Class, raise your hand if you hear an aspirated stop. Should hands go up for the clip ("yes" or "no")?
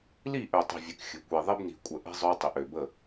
no